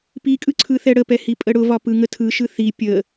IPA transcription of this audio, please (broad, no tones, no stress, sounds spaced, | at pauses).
p i kʼ ɯ ǀʰ ɯ θ ɛ ɽ ə p ɛ h i pʼ ə ɽ ʊ v ɒ p ɯ ŋ ə tʰ ɯ ʃ ɯ θ i pʲ ə